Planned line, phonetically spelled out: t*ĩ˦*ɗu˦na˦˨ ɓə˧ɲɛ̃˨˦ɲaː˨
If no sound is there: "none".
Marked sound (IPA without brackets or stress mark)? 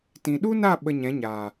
ĩ˨